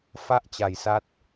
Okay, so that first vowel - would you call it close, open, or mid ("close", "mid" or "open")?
open